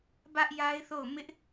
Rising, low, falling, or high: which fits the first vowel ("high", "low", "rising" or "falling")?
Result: high